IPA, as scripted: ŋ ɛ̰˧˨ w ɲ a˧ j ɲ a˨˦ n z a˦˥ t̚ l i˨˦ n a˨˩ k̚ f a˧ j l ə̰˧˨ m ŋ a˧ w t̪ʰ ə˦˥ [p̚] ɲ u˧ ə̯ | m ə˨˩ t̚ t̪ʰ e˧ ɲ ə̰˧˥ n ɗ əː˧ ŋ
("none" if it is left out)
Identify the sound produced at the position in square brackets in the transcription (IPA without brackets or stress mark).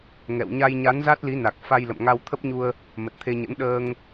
p̚